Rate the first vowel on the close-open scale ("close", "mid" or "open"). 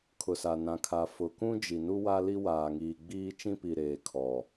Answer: close